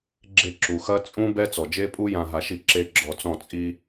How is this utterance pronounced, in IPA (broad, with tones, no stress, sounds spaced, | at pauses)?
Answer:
ɡ͡ǁ e˥˩ ǁ u˩ x ɐ˦˥ t͡sʼ ũ˦˥ b ɛ˦˥ t͡s ɔ˩ d͡ʒ e˦˥ pʼ u˦˥ j ã˧ ɦ a˧ ʃ i˥˩ ǁ e˦˥ ɡ͡ǁ ɔ˧ t͡s ɔ̃˥˩ t͡sʼ i˧